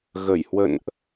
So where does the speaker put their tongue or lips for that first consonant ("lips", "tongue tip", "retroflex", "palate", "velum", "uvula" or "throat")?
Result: velum